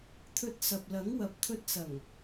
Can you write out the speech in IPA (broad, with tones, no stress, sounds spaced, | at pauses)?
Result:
t̪ʰ ɵ˧ t̚ s ɐ˨ p̚ l ɐ˨˥ ŋ w ɐ˨˥ p̚ t̪ʰ ɵ˧ t̚ s ɐ˨˩ ŋ